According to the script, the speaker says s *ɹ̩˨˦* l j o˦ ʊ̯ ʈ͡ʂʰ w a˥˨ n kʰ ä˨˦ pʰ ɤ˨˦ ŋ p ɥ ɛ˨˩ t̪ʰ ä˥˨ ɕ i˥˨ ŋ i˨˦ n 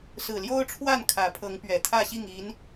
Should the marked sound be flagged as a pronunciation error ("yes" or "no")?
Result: yes